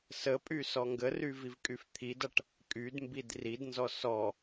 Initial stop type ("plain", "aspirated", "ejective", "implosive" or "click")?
ejective